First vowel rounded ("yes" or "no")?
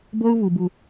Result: yes